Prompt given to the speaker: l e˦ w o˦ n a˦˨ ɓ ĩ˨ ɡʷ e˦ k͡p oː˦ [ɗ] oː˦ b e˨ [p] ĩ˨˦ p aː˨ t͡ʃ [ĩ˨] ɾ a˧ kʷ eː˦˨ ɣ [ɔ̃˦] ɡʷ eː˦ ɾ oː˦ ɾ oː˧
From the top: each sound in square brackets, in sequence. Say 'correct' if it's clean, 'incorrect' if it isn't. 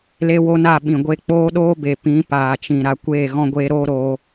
correct, correct, correct, correct

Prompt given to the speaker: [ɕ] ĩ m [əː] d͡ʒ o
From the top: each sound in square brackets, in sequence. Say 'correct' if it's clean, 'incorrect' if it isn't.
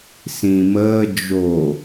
incorrect: s, correct

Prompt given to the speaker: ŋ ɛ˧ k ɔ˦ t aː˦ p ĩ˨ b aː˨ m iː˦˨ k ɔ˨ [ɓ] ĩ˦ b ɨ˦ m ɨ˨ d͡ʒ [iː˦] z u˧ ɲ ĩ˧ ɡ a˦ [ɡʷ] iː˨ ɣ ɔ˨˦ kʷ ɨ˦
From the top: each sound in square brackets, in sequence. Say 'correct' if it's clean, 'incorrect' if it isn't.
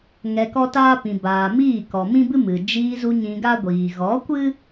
incorrect: m, incorrect: iː˧, correct

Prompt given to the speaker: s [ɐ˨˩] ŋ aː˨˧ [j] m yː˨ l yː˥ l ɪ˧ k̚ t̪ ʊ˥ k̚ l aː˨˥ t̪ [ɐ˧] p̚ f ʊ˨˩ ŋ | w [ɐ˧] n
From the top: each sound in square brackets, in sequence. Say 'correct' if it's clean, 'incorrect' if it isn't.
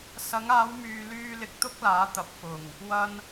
incorrect: ɐ˨˧, incorrect: w, incorrect: ɐ˨˥, correct

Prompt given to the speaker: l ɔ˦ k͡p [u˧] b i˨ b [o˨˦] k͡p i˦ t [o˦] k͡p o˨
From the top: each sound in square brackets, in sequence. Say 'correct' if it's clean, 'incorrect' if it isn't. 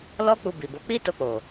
correct, correct, incorrect: o˧

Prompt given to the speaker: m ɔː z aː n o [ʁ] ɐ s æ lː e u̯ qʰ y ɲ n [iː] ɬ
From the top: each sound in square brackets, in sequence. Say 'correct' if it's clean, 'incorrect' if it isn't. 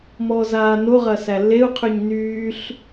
correct, incorrect: yː

